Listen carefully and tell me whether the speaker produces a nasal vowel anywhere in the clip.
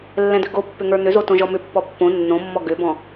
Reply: yes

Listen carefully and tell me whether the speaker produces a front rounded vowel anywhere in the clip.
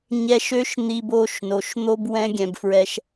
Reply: yes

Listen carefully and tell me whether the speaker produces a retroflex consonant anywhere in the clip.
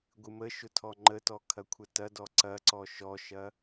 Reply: no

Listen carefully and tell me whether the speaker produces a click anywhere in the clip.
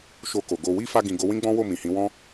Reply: no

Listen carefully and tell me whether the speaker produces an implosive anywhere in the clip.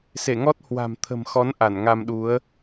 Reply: yes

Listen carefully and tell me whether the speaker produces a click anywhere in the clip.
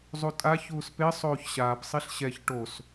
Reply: no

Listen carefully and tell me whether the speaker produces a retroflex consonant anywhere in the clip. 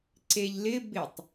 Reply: no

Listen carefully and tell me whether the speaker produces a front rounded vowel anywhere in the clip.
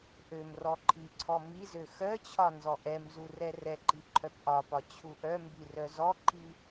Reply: yes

